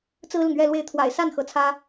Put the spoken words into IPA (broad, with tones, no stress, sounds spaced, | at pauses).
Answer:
t͡s ɹ̩˥ l ʊ˨ ŋ ɥ ɛ˥˧ l w e˥˩ ɪ̯ t̪ʰ w a̰˨˩ ɪ̯ s a˥˩ n x ɤ˧˥ t͡sʰ ä˥